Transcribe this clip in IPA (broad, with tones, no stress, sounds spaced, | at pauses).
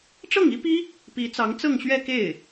ʈ͡ʂ ɤ˥˩ ŋ i˥ p i˥ | p i˧˥ t͡s ɑ˧˥ ŋ t͡s ɤ˥˧ ŋ ɕ ɥ ɛ˥˧ k e˥˩ ɪ̯